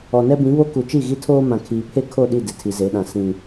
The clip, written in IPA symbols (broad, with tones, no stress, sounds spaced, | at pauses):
ɔ˨ n ɛ˦ b ĩ˨˦ β o˦ k u˨ t͡ʃ i˦˨ ɣ i˦ tʰ oː˦ m ã˨ kʰ iː˨ pʰ e˦ kʰ o˦˨ ɗ i˦˨ d ɪ˨ tʰ i˨ z e˨˦ ɗ ã˨ s ĩ˨